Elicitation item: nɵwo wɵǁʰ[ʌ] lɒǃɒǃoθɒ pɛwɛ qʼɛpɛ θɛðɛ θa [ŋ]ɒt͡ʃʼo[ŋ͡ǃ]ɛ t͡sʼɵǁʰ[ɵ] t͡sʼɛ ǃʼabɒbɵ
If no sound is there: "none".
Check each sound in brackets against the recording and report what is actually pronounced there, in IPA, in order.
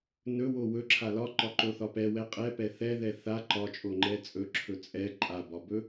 a, ǃ, ŋ͡ǃ, ɵ

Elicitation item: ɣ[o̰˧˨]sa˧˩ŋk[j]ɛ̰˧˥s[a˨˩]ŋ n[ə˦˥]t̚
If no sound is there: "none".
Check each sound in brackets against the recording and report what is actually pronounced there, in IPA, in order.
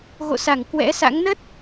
o̰˧˨, w, a̰˧˥, ə˦˥

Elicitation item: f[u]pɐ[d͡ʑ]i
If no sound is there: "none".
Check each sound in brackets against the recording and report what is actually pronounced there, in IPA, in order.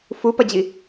u, d͡ʑ

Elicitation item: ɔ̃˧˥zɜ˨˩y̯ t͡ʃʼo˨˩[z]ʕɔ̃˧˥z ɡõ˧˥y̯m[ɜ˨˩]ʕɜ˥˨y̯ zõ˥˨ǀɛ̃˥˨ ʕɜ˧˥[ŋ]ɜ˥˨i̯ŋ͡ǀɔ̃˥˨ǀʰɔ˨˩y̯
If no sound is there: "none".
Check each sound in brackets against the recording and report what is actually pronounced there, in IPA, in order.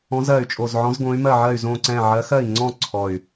z, ɜ˥˨, x

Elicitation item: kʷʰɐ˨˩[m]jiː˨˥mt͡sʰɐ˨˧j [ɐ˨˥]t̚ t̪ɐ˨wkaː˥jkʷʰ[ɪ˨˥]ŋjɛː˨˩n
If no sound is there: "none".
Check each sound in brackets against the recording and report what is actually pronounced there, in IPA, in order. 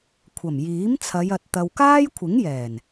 m, ɐ˨, ɪ˨˥

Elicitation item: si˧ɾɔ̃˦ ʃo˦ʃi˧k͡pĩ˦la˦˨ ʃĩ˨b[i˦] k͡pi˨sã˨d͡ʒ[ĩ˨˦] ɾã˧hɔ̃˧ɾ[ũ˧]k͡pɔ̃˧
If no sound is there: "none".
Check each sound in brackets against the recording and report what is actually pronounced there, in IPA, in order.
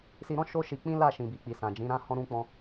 i˨, ĩ˨˦, ũ˧

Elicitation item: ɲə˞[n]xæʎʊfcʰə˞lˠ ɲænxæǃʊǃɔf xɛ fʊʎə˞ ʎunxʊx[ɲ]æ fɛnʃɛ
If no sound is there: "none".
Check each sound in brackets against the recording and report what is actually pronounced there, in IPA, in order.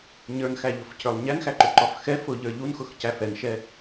n, c

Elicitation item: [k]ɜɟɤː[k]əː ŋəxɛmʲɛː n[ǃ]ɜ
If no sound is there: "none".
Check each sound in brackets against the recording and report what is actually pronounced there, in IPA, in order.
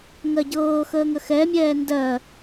ŋ, x, d

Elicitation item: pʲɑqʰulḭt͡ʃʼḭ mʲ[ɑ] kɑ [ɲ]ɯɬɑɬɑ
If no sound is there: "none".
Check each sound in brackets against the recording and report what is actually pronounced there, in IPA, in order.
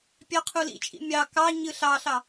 ɑ, ɲ

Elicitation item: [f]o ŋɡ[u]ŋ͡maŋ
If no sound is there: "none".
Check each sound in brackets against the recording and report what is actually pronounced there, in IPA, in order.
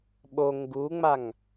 ɓ, u

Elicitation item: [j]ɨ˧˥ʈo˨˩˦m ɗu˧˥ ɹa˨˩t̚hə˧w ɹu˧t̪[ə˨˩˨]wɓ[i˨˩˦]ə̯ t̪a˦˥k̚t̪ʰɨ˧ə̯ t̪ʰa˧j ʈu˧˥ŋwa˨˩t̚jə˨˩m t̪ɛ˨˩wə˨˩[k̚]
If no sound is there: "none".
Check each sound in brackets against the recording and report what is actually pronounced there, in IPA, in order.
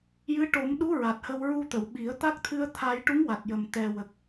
j, ə˨˩˨, i˨˩˦, k̚

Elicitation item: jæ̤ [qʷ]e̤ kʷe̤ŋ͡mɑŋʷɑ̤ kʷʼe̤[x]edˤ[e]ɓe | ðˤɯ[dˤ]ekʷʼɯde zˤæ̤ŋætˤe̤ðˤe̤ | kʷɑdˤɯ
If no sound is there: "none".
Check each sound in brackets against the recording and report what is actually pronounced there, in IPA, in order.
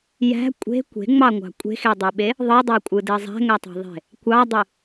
kʷʼ, x, ø, dˤ

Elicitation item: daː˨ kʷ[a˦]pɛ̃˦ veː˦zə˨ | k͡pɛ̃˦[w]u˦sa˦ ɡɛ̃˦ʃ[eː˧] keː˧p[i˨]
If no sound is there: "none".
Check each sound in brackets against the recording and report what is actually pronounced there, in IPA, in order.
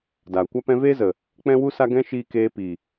a˦, w, iː˧, i˨

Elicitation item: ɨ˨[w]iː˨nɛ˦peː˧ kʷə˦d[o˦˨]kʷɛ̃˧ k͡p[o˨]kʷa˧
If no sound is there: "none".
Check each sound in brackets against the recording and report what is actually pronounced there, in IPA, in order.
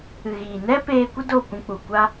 ɣ, o˦˨, u˨

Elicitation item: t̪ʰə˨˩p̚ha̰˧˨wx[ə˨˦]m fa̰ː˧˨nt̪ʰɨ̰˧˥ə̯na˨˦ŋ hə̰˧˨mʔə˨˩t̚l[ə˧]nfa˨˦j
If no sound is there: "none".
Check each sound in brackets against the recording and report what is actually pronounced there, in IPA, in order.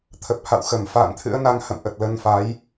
ə˧˩, ə˧

